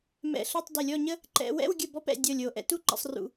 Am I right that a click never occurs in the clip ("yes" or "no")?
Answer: no